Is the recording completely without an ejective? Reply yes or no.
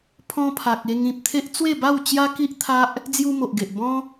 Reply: yes